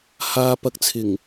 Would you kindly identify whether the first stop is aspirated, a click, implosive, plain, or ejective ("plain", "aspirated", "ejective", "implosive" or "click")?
plain